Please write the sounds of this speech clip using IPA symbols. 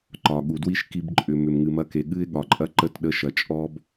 ǃ ɒ˨ ɠ u˨ d w i˦ ʃ k i˧ b ǃʼ ʏ˨ m ʏ˨ m ŋ ɨ˨ m ɐ˧ k e˨ ɠ ɨ˦ ɪ̯ ɠ ɒ˨ ǃʼ ɐ˦ ǃ ə˧ t ɗ ə˨˦ ʃ ɐ˨ t͡ʃʼ ɔ˦ b

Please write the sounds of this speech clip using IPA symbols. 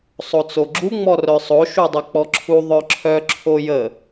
sˤ o t͡s o ɡ͡ǁ u ŋ͡m ɔ r œ sˤ o ʃ u dˤ ə k͡p ɔ ǁʰ u ðˤ œ ǁʰ œ ǁʰ o j ə

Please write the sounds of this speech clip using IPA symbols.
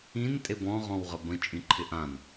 ĩ n tʼ e b ɔ̃ ʁ ɔ̃ w ʁ ə b ə̃ t͡ʃʼ ĩ ǃʰ ɪ ʔ ã n

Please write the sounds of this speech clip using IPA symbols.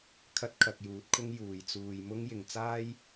kʰ ɐ˥ t̚ kʰ ɐ˧ k̚ j uː˨˥ t̚ kʰ ʊ˥ ŋ j uː˨ j t͡s uː˧ j m ʊ˥ ŋ j ɪ˨ ŋ t͡s aː˥ j

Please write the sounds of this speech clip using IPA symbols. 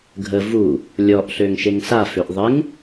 ɡʱ ə v u | lʲ ɔ ʔ ɬ ø ŋ ʃ e ŋ s a f ø ʔ ðˤ ɪ ŋ

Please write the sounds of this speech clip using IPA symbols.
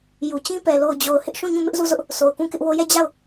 j u˨ t͡ɕ ĩ˦ p ɛ˨ l o˨ ʊ̯ d͡ʑ o˨ ʊ̯ h ɪ˦ ʔ ʃ ũ˦˨ ɲ ũ˦˨ m ɪ˦ ʔ z u˦˨ z ʊ˦ ʔ | s o˨ ʊ̯ k ũ˦˨ k ɪ˦ ʔ w o˦ j ɛ˦˨ d͡ʑ a˦˨ ʊ̯

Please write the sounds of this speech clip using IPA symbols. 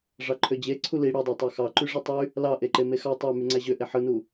ʐ ɑ ǃʰ ø d͡ʑ e ǀʰ u l i ɽ u dˤ ɑ tˤ ɑ x ɑ ǃ y ʐ ɯ tˤ y | l ɑ ʔ e ǃ e m e x ɑ tˤ æ m y ŋ͡ǀ æ ʑ ø ʔ e ħ ɯ n u

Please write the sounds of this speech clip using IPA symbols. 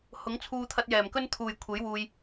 h ʊ˨˥ ŋ t͡sʰ uː˧ t̪ʰ ɐ˧ t̚ j ɛː˨˩ m k ɵ˥ n t̪ʰ uː˨ j kʷʰ e˨˥ j w uː˧ j

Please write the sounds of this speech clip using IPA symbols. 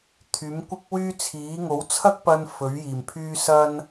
t̪ʰ yː˨˥ m kʷ ɪ˥ k̚ w yː˥ t͡sʰ iː˨˥ ŋ o˨˥ w t͡sʰ ɐ˥ k̚ p ɐ˧ n f ɵ˨˥ ɥ j iː˨˩ m pʰ yː˥ s ɐ˥ n

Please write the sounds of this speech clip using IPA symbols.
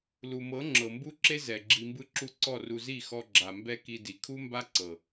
l u˨ m ɤ˨˦ ŋ͡ǁ ɤ˨ m b u˦ ǁ e˦ z ɛ˨ ɡ͡ǁ i˧ m b ɯ˦ ǁ u˦ ǀ ɔ˦˨ r u˧ z i˦˨ x ɔ˧ ɡ͡ǁ a˨ m b ɛ˦ k i˧ d i˨ kʰ u˦ m b a˦ ǀ ɤ˨

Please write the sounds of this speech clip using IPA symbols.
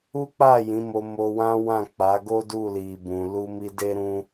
u˦ k͡p a˦˨ j ĩ˨˦ m o˧ m o˧ w ã˦ w ã˦˨ k͡p a˨˦ ɡ o˦ d u˦˨ l i˨ b ũ˨ l u˧ m i˧ d e˧ ɾ ũ˧

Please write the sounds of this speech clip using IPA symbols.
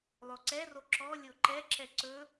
lˠ o ǀ ɛ r o ǁ ɔ lʲ o ǃ ɛ ǁ ɛ ǀ ɵ

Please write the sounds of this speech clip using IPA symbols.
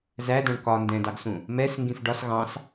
z æ d ɔ̃ ɳ k ɒ n d ɛ̃ d ɑ ɡ s ũ | m ɛ s ŋ ɡ ĩ f ɖ ɒ s ɣ ɑ̃ s

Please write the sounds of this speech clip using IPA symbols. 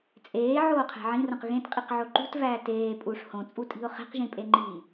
t͡sʼ eː ʕ oː qʰ æ̤ ʕ ĩ r õ q ɣ ẽ t qʼ i q ʕ o ǃ ṳ t v æː t eː pʼ u ʂ h õ t͡sʼ u tʼ i̤ ʊ̯ χ e̤ q ʒ ĩ pʼ e ŋ͡ǃ iː

